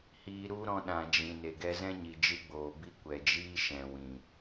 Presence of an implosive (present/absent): present